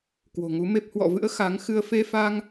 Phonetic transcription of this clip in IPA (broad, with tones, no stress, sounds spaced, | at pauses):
k w o̤˨˩ ŋ u˨˦ m e˦˥ p̚ h w ɔ̰˧˨ v ɨ̰˧˥ ə̯ x a˨˦ ŋ x ɨ˧ ə̯ f e˧ f a˧ ŋ